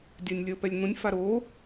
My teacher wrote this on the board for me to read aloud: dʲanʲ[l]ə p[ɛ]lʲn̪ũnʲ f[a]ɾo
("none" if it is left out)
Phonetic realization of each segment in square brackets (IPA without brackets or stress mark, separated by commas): lʲ, ɛ, a